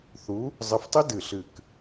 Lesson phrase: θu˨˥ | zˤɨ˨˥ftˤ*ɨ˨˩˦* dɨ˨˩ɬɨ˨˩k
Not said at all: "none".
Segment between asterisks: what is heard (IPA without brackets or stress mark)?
ɨ˦˥